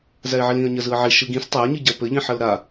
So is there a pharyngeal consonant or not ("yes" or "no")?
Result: yes